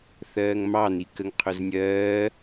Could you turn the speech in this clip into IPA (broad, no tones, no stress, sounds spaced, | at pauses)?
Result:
θ ɜː ŋ m ɑ n i k ə ŋ qʰ ʊ z nʲ ɜː